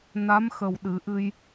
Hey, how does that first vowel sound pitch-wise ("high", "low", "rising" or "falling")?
rising